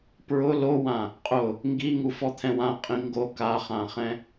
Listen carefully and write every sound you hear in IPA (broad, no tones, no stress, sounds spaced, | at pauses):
p ɹ ʊ l o w ã | qʼ ʊ | ŋ ɡ i ŋ u f ɔ t̪ʰ ɛ̃ w ã qʼ ĩ ŋ ɡ o k a χ ã χ ɛ̃